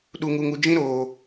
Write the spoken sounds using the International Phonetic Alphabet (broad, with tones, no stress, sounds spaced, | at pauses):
ɗ u˨ ŋ u˨ ŋ u˨ d͡ʒ ĩ˦ ɾ oː˨